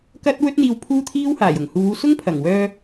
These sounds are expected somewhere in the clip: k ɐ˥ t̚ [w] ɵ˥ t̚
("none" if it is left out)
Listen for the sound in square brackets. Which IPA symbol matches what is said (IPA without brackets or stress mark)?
w